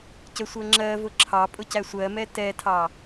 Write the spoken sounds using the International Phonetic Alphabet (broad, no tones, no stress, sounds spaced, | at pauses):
c ə sʷ ɜ ŋ͡ǁ ɜ v ʊ ǁʰ ɑ pʼ ʊ c æ sʷ ɜ m ɛ t ɛ tʰ ɑ